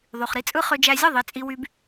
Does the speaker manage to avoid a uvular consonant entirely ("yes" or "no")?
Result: no